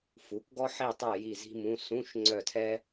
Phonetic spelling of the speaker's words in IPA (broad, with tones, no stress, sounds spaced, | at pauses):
f u˩˥ k ɡ ɔ˥ ħ i˦˨ tˤ œ˦˨ j i˦˨ z i̤˥ m ũ˧˥˧ s ũ˧˥˧ ʃ ŋ͡ǀ œ˦˨ tʰ ɛ˥